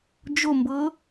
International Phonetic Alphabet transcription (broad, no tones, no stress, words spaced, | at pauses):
d͡ʒombɤ